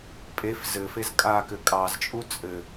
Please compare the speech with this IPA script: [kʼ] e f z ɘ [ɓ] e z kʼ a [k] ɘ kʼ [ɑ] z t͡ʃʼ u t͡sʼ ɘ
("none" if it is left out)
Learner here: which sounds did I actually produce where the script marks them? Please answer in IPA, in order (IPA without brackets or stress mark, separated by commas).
pʼ, f, k, ɑ